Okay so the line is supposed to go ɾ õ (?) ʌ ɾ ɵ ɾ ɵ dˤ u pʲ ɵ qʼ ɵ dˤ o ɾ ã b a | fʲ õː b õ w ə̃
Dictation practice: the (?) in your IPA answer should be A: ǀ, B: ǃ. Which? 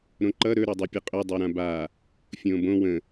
B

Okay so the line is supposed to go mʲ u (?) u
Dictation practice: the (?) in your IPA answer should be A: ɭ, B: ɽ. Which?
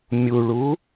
A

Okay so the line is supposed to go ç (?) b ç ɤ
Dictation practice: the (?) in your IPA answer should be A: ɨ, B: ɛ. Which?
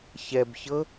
B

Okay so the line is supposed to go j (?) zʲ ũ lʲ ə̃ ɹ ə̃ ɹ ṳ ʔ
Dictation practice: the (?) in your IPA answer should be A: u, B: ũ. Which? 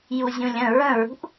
A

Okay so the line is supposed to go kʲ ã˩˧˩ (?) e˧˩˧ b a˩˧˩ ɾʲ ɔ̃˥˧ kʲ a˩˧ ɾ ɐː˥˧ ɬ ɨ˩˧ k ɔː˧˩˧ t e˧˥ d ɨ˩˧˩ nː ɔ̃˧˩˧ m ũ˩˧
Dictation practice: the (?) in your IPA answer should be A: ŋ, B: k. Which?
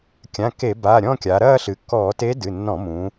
B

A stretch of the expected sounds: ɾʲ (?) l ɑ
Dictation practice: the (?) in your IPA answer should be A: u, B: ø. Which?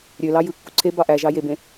B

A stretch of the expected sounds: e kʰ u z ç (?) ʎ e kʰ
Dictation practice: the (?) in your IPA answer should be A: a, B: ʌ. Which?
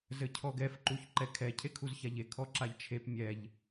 A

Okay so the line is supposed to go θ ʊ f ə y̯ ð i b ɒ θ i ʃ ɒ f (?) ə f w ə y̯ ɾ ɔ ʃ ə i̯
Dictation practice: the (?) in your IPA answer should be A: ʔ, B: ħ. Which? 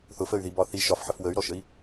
B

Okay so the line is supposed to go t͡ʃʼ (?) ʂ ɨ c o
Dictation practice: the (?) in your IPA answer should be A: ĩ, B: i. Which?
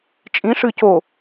A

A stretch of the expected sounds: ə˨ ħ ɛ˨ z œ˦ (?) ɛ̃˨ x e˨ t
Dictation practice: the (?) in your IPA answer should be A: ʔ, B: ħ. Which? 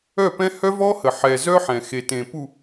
B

